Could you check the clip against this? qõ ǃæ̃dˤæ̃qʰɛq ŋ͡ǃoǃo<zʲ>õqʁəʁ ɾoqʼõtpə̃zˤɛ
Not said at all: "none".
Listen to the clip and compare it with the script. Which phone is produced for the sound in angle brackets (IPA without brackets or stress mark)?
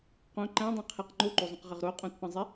zˤ